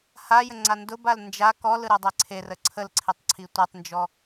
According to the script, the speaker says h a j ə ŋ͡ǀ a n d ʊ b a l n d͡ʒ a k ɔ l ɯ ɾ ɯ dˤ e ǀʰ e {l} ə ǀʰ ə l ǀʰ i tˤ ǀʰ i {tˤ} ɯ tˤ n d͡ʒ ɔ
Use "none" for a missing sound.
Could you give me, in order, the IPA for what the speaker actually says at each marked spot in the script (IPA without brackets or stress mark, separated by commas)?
r, tʷ